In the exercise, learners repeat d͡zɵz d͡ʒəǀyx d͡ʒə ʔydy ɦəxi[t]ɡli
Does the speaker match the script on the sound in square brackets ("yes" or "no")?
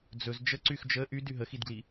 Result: no